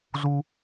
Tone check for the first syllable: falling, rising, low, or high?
high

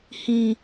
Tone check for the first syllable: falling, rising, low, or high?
low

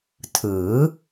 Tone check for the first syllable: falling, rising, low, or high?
rising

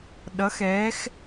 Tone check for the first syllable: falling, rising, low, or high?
rising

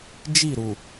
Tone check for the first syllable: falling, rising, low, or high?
falling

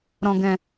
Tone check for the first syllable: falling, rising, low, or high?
low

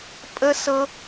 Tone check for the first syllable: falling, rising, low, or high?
high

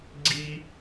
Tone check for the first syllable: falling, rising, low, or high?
high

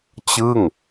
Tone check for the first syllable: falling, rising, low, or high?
falling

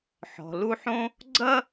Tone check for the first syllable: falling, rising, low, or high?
low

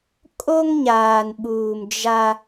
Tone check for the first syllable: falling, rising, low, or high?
high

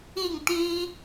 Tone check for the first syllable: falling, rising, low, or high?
falling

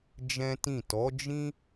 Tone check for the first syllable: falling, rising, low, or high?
high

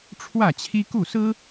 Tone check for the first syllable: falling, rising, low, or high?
falling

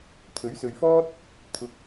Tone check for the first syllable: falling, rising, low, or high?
rising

